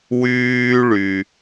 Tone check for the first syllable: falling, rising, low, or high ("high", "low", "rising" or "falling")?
high